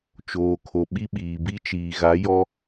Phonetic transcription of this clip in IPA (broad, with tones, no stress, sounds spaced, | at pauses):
t͡ʃ oː˨ kʰ o˨ ɓ i˦ ɓ iː˨ b i˦ t͡ʃ iː˨ ɣ a˨˦ j ɔ˦